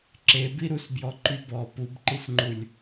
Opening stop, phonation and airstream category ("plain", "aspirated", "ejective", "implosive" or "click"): click